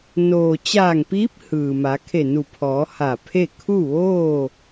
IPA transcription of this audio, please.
n oː˩ t͡ɕ aː˧˩ ŋ p iː˧˥ p̚ h ɯː˩ m a˩˧ kʰ e˧˩ n u˧˩ pʰ ɔː˩˧ h a˧˩ pʰ e˥˨ kʰ u˥˨ ʋ oː˥˨

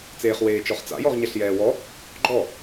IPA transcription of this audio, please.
t͡s eː χ w eː t͡ʃ ɔ χ t͡s a̰ j ɔ ʁ ɲ ɛ ɬ j ɛː w ɔ | ɡ͡ǃ ɔ

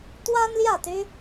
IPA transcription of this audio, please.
t̪ w a˦ n l j ä˥˨ t̪ y˦

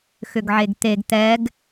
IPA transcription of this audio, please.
x ʏ ɡ ʕ e ɡ t̪ e ɡ t̪ ɛ ɡ

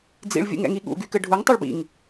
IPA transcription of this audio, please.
d͡z ḭ ɭ vʲ ṵ ŋ ɛ̰ ŋ i ɠ ṵ ɡ y k ɘ ɖʱ u ŋ tˤ u ɭ b ḭ ŋ

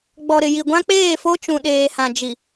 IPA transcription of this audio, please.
ɡ͡b ɔ˨ ɾ ɪ˨ j i˨ ɡʷ ã˦ k͡p eː˦˨ f o˦ t͡ʃ ũ˨ ɗ eː˨ h ã˨ d͡ʒ i˨

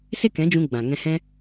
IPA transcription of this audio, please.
s e˦ k ɛ̃˨˦ d͡ʒ ũ˧ ɡ͡b ã˨ ŋ ɛ̃˧ h ɛ̃˦

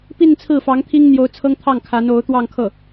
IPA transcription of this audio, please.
p i˥˧ n t͡sʰ ɹ̩˥˩ f ɑ˧˥ ŋ t̪ʰ i˥ ŋ n̪ j o˧˥ ʊ̯ t͡sʰ ɤ˥ ŋ t̪ʰ ɑ˥˩ ŋ kʰ a˧˥ n o˧˥ ʊ̯ t̪ w ɑ˥˧ ŋ kʰ ɤ˥˩

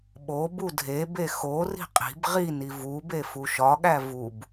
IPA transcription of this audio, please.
ɓ o b u dʱ e b e x o r i̤ qʼ i̤ b ʁ i n i v u b e f u ʃ ɒ ɠ æ v u b

